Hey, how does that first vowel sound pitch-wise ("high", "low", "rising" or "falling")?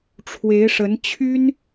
rising